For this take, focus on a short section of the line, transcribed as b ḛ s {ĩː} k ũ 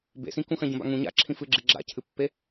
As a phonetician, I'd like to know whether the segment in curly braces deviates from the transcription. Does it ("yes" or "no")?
yes